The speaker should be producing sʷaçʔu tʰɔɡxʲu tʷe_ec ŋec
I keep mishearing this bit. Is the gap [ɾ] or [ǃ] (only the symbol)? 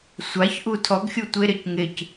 ɾ